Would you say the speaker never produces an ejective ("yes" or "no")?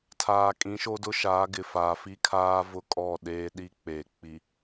no